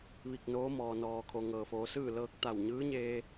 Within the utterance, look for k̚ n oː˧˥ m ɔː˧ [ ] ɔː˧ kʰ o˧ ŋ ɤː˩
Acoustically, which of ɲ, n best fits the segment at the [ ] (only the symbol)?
n